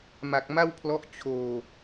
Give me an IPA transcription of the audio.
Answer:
m a˨˩ k̚ m a˥˩ w pʰ l ɔ˦˥ ʔ t͡ɕʰ oː˨˩

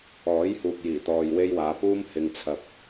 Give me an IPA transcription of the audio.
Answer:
ɔː˨˥ j h uː˨ k̚ j iː˨˩ t̪ ɔː˨ j w e˧ j w aː˨˧ p uː˥ m h ɪ˧ ŋ t͡sʰ ɐ˧ p̚

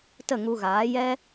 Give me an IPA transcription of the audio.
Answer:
t ə˦˨ ŋ u˧ ɣ aː˨˦ j ɛ˦

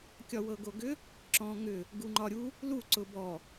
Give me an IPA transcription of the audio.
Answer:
kʲ ɒ w ɤ ɡ o ɡ ʏ | ǁ ɔ̃ ŋ ʏ | ɡ u ŋ͡ǃ ɒ ɾʲ u | l u ǀ ʊ b ɔ

